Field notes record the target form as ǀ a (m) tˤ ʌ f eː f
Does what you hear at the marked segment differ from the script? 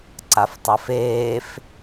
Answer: yes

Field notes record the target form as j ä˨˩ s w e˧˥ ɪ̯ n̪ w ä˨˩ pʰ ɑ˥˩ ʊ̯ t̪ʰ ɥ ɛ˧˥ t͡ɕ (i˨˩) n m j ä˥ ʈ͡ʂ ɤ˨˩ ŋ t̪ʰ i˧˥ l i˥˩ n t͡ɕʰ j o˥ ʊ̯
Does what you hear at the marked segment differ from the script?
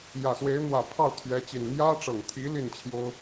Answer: no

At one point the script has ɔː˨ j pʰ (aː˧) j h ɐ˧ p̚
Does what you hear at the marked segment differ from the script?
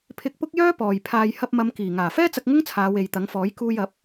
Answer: no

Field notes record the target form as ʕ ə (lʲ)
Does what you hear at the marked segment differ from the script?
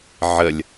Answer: no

